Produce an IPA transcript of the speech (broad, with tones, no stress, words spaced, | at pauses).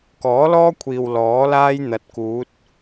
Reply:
kɔː˨˥lɔː˥kʷʰiː˨w lɔː˨˥laː˥j n̪ɐ˨˥t̚kuː˨˥t̚